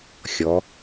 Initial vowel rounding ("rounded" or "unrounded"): rounded